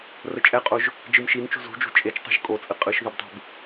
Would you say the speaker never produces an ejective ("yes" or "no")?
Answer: no